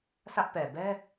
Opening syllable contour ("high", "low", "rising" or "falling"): high